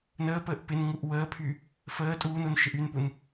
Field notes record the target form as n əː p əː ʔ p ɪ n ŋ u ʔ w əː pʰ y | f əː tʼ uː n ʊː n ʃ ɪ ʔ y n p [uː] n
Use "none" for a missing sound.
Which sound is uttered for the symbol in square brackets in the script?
u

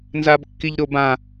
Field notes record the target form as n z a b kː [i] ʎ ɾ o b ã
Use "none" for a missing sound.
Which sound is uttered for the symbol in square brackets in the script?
i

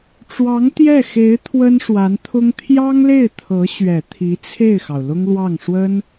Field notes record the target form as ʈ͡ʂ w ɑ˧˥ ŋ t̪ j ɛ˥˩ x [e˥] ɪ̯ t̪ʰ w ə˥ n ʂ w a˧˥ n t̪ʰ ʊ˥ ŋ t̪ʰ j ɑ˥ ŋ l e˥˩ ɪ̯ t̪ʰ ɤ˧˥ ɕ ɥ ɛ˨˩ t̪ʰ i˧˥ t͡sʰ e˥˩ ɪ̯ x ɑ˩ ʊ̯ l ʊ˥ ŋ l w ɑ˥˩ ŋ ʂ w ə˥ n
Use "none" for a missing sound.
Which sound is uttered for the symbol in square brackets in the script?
e˧˥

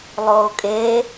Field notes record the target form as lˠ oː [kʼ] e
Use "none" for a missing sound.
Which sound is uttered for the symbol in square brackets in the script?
kʼ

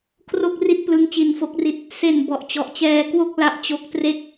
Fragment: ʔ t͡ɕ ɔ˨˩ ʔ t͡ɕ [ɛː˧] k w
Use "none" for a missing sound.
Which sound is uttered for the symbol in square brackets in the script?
ɛː˧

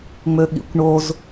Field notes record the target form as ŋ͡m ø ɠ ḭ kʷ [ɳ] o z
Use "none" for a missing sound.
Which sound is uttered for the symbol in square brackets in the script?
ɳ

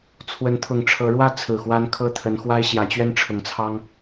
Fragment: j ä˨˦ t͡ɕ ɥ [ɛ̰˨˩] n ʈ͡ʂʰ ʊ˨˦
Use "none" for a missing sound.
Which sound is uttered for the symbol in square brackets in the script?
ɛ˦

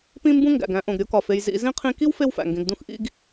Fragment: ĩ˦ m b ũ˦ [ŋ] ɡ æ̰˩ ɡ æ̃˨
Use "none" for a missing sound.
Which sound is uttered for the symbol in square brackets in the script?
ŋ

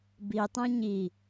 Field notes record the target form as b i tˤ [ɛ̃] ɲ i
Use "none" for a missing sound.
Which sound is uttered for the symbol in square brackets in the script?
ɛ̃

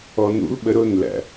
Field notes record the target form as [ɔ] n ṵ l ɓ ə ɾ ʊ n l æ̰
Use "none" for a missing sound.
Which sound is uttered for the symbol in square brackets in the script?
ɔ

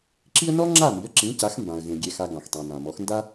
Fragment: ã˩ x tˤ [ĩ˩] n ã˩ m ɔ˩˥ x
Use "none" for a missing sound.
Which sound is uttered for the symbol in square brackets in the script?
ĩ˩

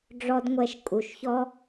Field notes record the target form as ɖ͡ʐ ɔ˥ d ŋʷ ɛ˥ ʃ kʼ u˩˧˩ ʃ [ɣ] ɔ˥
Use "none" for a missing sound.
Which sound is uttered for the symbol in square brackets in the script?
ç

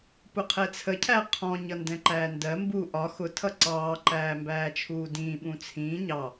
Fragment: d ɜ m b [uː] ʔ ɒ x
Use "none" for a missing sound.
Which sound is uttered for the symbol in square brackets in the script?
uː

